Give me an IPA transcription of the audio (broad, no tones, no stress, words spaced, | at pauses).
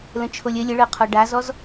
lə̃t͡ʃʰolʲə lʲəɭɤqʰɔ ɖazɔz